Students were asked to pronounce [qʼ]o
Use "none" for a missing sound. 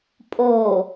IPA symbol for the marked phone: pʼ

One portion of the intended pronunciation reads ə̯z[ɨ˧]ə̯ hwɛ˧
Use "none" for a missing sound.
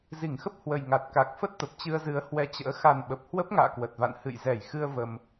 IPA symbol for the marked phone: ɨ˨˦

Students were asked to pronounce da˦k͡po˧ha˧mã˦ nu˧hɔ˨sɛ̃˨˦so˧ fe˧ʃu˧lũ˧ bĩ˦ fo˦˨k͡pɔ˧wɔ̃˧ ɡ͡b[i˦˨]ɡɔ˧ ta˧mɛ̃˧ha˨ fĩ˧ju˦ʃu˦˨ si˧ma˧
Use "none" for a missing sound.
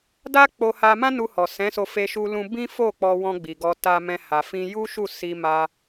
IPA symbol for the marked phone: i˨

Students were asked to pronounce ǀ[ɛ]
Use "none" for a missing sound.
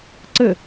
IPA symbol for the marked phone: ə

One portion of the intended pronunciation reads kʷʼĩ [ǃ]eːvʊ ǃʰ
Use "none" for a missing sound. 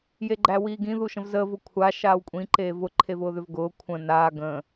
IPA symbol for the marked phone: ǃ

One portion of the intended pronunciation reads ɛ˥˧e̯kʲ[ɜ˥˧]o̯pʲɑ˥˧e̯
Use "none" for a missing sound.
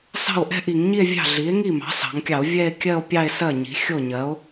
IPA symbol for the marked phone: ɜ˥˧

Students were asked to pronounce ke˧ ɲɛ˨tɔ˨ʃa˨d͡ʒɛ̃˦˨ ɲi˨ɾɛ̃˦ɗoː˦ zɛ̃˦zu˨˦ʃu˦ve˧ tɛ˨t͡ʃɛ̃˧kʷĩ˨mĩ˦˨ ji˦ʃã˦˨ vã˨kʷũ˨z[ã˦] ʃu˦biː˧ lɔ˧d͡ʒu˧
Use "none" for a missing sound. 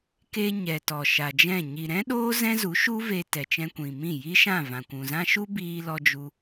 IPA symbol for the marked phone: ã˦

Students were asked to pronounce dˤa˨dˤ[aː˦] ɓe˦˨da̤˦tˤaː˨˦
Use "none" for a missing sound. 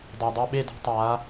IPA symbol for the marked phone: a˦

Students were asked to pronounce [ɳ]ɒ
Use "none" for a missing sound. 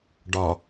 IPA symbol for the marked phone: ɖ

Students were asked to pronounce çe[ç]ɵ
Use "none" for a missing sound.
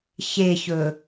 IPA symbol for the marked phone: ç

